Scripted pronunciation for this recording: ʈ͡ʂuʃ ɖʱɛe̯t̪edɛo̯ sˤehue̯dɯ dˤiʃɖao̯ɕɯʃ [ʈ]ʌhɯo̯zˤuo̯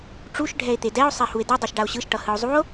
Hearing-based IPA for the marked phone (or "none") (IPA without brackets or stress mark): ʈ